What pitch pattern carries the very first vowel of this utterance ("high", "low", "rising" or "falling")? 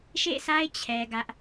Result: falling